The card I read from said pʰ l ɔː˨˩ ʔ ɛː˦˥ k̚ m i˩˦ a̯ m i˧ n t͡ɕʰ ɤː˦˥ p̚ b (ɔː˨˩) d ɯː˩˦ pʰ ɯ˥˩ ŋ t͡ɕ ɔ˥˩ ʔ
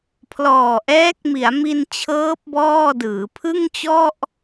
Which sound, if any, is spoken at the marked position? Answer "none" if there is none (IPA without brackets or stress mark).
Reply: ɔː˥˩